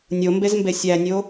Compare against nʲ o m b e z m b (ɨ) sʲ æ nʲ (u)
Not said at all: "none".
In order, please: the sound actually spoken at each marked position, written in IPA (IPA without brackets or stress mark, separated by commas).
e, o